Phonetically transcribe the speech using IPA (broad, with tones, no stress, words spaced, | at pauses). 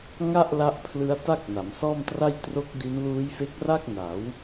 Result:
ŋa˥˩ʔla˦˥ʔpʰlɯ˦˥a̯ ta˥˩k̚na˩˦msɔː˥˩mtra˥˩j tro˦˥k̚di˦˥n luː˦˥jfe˦˥k̚ra˥˩k̚ na˩˦w